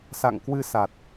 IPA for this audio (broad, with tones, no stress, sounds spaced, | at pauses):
s a̰˧˨ ŋ k w ɨ˧ s a˨˩ t̚